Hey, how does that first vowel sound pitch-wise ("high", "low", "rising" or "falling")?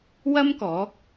high